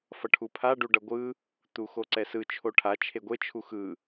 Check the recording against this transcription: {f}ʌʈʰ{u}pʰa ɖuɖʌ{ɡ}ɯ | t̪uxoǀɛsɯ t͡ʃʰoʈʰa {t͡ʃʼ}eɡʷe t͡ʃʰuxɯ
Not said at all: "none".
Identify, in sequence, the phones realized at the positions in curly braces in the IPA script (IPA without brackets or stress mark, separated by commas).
f, u, ɡʷ, t͡ʃʰ